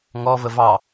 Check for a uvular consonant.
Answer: absent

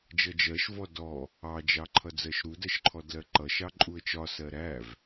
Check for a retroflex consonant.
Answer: absent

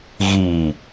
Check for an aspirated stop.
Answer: absent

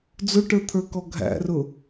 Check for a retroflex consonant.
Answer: present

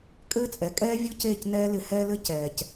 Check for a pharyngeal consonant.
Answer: absent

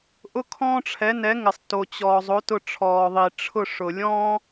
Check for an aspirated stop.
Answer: present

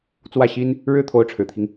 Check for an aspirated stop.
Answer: present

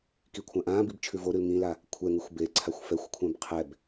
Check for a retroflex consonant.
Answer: absent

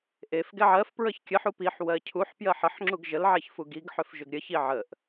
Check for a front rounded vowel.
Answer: present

